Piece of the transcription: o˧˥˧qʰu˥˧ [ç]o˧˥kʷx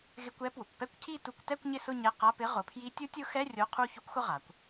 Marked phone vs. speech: correct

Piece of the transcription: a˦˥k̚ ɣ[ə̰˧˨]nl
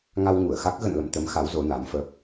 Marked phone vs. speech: correct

